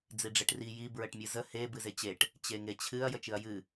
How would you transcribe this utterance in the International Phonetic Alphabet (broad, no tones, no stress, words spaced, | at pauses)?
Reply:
d͡ziɖ͡ʐeʈri ji bɹəʈmʲɨzə he bɨzet͡ɕeʈ | t͡ɕeŋet͡ɕʰɨɐ̯ jət͡ʃɨɐ̯jɨ